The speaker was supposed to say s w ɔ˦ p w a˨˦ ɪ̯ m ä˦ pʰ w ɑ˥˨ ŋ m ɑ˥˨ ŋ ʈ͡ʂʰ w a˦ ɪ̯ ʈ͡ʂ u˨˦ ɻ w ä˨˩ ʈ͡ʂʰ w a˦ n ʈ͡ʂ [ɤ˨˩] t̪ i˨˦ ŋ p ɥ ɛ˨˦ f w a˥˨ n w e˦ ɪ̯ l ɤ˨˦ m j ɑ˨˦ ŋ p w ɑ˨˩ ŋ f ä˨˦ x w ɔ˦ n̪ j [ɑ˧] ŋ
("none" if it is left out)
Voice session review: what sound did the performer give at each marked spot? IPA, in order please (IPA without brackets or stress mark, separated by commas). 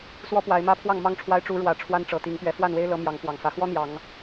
ɤ˨˩, ɑ˨˦